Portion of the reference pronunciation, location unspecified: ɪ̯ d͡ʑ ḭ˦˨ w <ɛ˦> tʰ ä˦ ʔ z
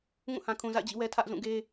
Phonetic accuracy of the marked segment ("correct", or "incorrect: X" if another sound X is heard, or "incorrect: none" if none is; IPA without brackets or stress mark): correct